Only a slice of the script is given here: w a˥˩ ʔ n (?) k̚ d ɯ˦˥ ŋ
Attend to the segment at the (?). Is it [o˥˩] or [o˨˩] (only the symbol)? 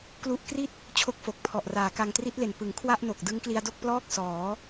o˨˩